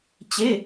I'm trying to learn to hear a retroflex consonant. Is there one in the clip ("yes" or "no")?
no